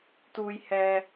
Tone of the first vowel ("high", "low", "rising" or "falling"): low